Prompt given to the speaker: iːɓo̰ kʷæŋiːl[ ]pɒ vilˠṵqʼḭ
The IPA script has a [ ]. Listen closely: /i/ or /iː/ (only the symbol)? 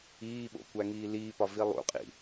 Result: iː